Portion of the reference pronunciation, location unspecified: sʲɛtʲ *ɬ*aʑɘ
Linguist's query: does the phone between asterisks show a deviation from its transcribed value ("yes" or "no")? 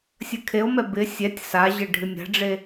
yes